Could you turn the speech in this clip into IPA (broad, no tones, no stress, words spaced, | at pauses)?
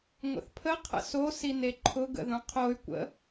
ŋʷə̰θpʰə qʰə̰so sineǃʰʊ ɡə̰ðũqʰoy̯ kʷə̰